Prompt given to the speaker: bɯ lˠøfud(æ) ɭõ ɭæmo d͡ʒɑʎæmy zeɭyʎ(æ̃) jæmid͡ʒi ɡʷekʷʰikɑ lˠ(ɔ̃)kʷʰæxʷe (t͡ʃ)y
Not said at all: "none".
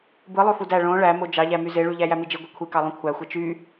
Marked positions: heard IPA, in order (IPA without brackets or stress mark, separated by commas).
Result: æ, æ, õ, t͡ʃ